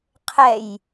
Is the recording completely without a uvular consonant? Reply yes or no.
no